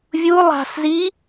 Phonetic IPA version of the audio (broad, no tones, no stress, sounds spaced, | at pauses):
vʲ u lˠ a̤ s z i